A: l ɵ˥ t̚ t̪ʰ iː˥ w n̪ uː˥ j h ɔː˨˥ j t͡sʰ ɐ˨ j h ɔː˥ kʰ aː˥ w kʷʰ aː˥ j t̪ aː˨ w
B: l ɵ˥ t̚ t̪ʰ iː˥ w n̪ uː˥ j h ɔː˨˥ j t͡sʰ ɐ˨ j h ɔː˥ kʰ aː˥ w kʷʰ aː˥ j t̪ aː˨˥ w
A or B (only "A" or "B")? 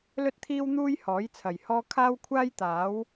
B